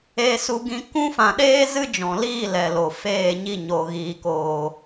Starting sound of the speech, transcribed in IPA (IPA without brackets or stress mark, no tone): eː